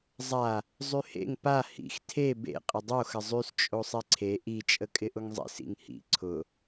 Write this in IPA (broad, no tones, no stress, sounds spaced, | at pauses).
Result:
zˤ a | zˤ y h ḛ ŋ p a h ḭ x tʰ e b ḛ qʼ ɪ dˤ o x ə zˤ y s t͡ʃʼ o sˤ e ǀʰ e ʔ i t͡ʃʼ ə kʼ ɪ ʔ ʊ ŋ zˤ ḛ s ḭ ŋ h ḭ ǀʰ ʊ